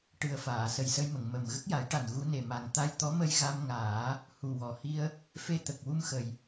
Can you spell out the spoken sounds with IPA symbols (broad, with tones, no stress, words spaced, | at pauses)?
ʈɨ˨˩ə̯ faː˨˩˨sə˨˩jsə˧jmə˨˩˨ŋ mə˨˩m ɣə˦˥k̚ja˨˩˦jʈa˨˩n ɣu˧˥ne˨˩ma˨˩ŋ t̪a˧jt̪ɔ˧˥mə˧j ɣa˧mŋaː˨˩˦ | hu˨˩wɔ˨˩hi˧ə̯ | fe˧t̪ə˨˩k̚ wu˧mxə˨˩j